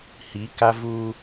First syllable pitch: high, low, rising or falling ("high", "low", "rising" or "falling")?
rising